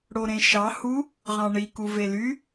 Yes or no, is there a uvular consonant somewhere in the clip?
yes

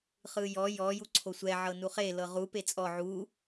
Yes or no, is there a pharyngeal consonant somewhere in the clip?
yes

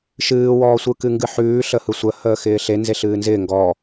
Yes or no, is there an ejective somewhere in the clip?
no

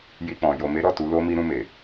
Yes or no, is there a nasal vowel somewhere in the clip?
yes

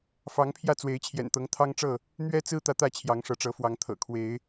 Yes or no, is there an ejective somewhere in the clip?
no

